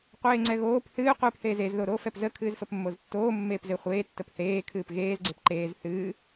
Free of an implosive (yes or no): yes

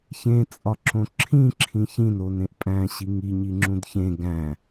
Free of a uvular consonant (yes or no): yes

